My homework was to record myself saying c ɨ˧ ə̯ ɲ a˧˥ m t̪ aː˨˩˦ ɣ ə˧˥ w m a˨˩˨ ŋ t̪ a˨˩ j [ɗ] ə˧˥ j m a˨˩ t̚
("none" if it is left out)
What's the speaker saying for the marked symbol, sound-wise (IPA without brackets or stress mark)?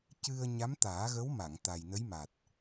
n